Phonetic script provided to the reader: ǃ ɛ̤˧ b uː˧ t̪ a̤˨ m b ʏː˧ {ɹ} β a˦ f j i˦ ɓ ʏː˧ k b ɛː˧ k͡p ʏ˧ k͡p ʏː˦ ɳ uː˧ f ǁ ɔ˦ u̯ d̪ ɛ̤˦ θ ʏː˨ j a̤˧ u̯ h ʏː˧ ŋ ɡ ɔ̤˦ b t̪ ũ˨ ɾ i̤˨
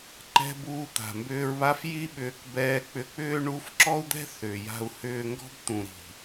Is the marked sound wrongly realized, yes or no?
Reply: no